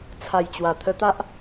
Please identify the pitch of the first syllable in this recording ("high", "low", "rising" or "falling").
low